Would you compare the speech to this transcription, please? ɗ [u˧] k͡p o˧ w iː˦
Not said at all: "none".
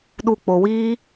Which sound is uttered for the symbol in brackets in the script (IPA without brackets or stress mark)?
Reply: u˧